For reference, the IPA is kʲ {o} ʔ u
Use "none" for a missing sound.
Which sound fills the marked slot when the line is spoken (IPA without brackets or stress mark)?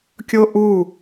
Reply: o